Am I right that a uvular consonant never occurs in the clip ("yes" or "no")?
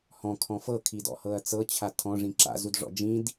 yes